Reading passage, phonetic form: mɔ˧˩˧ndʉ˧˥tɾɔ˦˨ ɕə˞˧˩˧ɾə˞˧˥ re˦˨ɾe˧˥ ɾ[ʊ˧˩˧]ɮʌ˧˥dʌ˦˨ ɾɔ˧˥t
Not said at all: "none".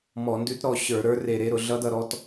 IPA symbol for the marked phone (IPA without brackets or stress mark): ʊ˧˩˧